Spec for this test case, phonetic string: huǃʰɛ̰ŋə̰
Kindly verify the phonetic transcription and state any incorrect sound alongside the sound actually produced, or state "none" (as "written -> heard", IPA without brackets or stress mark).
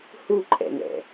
ə̰ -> ɛ̰